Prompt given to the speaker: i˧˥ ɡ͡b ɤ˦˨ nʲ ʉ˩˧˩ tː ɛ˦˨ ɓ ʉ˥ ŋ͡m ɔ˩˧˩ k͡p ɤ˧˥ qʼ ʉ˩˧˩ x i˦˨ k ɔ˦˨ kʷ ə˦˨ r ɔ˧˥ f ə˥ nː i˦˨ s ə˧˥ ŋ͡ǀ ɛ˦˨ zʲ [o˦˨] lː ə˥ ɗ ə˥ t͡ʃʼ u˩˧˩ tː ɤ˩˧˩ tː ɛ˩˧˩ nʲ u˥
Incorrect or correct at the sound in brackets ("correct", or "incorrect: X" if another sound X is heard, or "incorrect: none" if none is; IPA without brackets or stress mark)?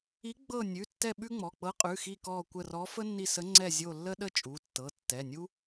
correct